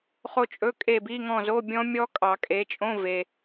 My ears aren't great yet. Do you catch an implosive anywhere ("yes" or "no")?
no